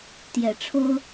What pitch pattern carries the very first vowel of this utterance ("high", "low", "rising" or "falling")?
low